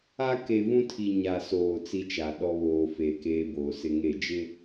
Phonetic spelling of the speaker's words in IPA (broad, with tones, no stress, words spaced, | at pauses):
a˦ ke˨vũ˦tʰi˨ ɲa˨soː˨ t͡si˦t͡ʃa˨ɗɔ˦ βoː˨fe˨ keː˦boː˨ sɪ˦ŋe˦˨d͡ʒɪ˦